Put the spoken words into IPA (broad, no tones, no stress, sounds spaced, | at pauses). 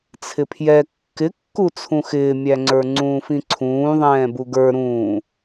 t͡sʰ ɪ pʰ j ɛ kː ɪ kː u t͡sʰ ũ x ɪː mʲ æ ŋ͡ǀ ə˞ ŋ͡ǀ ũː f ĩ ǀʰ ũː ðˤ ɛ̃ː b u ɡ ə˞ ɾ ũː